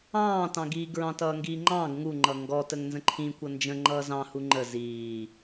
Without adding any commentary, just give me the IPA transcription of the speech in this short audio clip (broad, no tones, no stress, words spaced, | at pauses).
ɑ̃ːtɑ̃ɡiː ɡɹɑ̃tʌːŋɡiːŋ͡ǃɑ̃ːɡ ŋuŋ͡ǃʌ ŋɡɔtəŋ nzə̃ǃʰĩ kʷʌnd͡ʒə̃ŋ͡ǃʌː zɑ̃hu ŋ͡ǃə ziː